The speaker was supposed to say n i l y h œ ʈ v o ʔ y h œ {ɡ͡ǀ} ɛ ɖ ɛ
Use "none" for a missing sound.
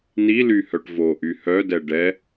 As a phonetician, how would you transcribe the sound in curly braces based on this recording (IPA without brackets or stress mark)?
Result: d